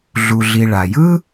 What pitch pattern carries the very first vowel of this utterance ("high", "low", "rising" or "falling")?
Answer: low